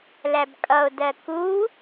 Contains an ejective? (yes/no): yes